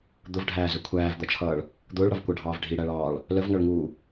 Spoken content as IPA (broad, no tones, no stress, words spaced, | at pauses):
d̪ʊvɖʱæːzə kʷʰæːvd̪ʌt͡ʃʰʌːɭ | d̪ʊːɭɽʌvkʷɑɖʱɑːv ɖʱiɽæɭɑːɭ | ləvŋʌɭŋuː